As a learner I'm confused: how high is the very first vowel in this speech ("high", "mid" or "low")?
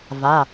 low